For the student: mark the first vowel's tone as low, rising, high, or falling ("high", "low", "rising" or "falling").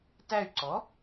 falling